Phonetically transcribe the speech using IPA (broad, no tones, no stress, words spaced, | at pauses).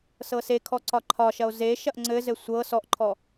sɤsekʰɔ ǀɒǃʰɒʃɐo̯ zeʃɐʔ ŋ͡ǀɘzɘ sʷɤ sɔʔǃʰɔ